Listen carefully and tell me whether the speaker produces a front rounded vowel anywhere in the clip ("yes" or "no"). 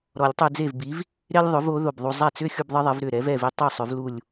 yes